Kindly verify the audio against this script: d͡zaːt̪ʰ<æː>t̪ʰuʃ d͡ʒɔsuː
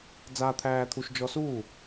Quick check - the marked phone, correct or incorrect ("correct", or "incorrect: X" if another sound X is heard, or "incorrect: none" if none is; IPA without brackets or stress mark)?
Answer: correct